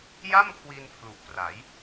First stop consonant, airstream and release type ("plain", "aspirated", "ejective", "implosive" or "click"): aspirated